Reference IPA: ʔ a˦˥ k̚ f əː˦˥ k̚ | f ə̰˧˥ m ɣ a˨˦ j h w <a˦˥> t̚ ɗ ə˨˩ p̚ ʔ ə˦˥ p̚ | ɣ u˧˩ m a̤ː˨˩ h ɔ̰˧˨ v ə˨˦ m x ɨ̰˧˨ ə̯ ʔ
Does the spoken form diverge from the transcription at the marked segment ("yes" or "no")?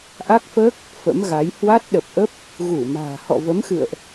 no